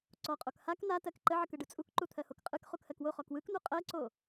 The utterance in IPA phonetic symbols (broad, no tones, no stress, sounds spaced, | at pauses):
ǀ ɔ qʼ o k h a k n̪ a t ɜ k ǃ ə ʕ ə k ɯ ɖ ɯ t͡sʼ u k ǃ u t̪ʰ ɜ h o k qʼ ɯ k χ u k h ɜ k w o χ ɔ k w ɯ k n̪ u qʼ ɜ ǀ o